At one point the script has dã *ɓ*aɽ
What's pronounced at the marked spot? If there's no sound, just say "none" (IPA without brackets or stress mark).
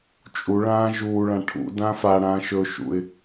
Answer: f